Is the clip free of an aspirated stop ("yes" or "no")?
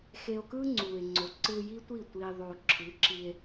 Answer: no